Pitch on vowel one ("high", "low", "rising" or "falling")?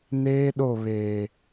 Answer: high